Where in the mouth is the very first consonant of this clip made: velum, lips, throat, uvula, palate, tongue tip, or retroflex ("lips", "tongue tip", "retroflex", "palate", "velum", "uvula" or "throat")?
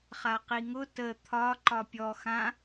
uvula